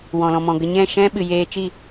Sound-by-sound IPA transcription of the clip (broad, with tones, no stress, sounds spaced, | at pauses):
w ɔ̃˨ l ɔ̃˨ m ɔ̃˨ ɡ ə˧ ɲ ɛ̃˦˨ ʃ ɛ̃˦ ɓ ɨ˨ j eː˧ t͡ʃ i˦˨